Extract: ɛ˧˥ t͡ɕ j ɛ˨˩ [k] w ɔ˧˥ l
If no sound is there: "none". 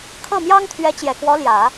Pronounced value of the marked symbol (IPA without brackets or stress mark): k